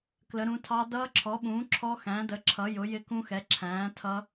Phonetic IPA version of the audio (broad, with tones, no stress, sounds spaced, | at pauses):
k l ə˨˥ ɾ ũ˨˥ tʰ ɑ˦˥ d ʌː˦˥ ǁʰ ɔ˨˥ ɓ ũː˨˥ ǁʰ ɔ˦˥ x æ̃˨˥ d ə˨˥ ǁʰ ʌ˨˥ j ʊ˨˥ j ɪ˦˥ k ũ˦˥ x ɛ˨˥ ǁʰ æ̃ː˨˥ tʰ ʌ˦˥